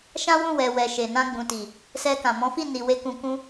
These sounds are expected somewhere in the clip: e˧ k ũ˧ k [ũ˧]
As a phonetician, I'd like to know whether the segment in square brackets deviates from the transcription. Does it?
yes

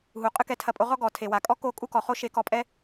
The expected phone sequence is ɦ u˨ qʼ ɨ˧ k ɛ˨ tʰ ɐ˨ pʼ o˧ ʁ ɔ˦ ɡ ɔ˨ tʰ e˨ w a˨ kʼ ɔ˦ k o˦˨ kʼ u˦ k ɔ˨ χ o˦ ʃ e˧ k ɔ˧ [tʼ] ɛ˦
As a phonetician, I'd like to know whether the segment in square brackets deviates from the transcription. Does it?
yes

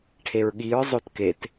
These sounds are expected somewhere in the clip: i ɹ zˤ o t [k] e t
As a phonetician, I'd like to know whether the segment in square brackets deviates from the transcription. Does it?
no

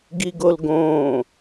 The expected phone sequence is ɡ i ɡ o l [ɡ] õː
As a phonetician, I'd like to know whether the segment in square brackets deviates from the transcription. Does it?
no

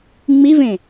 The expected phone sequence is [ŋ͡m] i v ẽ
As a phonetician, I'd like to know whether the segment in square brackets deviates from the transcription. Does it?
no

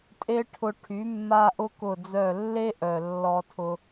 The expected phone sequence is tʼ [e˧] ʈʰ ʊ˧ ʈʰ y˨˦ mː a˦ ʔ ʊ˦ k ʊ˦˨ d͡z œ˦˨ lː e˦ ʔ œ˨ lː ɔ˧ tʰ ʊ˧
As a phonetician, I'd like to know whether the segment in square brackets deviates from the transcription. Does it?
yes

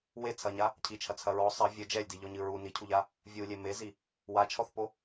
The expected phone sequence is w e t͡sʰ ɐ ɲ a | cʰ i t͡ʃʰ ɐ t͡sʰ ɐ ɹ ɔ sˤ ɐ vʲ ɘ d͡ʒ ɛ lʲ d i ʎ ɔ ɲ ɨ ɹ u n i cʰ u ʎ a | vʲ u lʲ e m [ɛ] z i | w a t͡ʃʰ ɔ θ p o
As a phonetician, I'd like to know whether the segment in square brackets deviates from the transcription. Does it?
yes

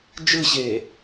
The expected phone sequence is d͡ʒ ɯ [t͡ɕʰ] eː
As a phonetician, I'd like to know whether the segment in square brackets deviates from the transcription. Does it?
yes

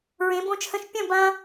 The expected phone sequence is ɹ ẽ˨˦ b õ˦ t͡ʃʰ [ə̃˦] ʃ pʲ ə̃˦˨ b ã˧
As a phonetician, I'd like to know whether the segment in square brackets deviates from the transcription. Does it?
no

